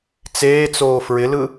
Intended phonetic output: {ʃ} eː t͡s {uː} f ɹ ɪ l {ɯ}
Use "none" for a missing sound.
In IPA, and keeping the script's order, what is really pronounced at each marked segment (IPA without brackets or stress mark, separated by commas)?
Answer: t͡s, oː, ɯ